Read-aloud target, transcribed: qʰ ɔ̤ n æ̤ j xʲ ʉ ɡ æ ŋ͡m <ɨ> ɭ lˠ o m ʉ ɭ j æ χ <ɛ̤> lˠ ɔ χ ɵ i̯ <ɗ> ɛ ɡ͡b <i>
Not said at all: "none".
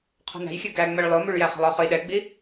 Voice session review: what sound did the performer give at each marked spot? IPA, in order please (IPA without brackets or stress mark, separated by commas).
ɛ, ɛ̤, ɗ, i